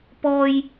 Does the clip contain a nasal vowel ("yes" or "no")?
no